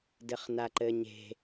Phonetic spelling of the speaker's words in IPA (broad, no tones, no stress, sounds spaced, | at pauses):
d ɘ χ n a ǃ ɘ ɲ e̤